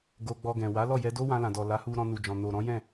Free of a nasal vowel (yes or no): no